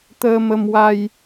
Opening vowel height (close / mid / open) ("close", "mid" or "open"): mid